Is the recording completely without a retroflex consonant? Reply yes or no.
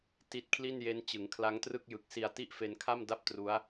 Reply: yes